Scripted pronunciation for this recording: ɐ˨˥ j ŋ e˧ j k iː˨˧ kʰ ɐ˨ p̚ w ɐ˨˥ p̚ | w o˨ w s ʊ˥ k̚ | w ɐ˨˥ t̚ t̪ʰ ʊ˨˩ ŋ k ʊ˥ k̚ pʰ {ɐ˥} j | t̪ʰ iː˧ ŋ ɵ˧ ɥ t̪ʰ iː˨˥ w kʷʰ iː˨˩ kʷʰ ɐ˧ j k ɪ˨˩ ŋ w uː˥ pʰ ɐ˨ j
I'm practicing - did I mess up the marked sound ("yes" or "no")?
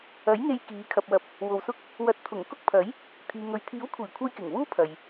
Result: yes